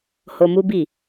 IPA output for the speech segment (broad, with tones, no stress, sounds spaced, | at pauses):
h o˧ m u˦ b i˦˨